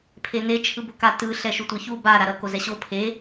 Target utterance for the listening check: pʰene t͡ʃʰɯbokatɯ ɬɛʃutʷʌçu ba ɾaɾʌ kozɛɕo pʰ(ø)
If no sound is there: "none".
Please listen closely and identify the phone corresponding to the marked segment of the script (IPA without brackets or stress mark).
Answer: e